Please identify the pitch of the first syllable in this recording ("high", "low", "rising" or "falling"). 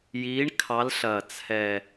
rising